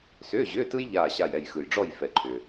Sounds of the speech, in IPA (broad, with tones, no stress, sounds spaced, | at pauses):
s ʏː˧˥˧ ʑ ʏː˧˥˧ t ɯ˥ j ʎ aː˦˨ ɕ a˦˨ j ɛ˦˨ j x ɯ˨ j ɖ͡ʐ ɔ˦˨ j f ɛ˨ ǃʰ ʏː˨